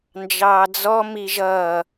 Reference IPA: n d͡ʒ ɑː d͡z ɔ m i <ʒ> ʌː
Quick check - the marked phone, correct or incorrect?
correct